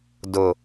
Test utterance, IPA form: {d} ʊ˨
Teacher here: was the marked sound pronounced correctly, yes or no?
yes